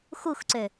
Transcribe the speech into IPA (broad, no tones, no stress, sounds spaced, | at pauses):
x u x ǀ ø